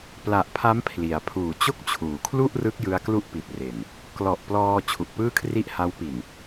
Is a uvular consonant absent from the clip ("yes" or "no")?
yes